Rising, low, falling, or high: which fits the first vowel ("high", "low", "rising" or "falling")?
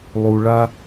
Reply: high